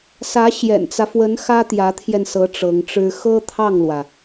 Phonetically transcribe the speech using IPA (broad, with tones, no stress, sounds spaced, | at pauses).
s ä˧˥ ɕ j ɛ̰˨˩ n t͡s ä˦ f w ə˧˥ n x ä˥ t̪ j ä˧˥ t̪ʰ j ɛ˧ n s ɤ˧˥ ʈ͡ʂ ɤ˧˥ ŋ ʈ͡ʂ ɻ̩˥ x ɤ˥ t̪ʰ ɑ˥˩ ŋ l w ä˩